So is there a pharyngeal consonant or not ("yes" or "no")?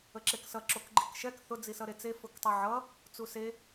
yes